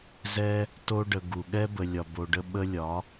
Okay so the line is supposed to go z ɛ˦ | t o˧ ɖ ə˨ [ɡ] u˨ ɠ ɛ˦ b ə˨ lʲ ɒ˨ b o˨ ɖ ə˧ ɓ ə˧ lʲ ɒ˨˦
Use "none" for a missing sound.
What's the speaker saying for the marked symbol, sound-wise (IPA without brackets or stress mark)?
ɡ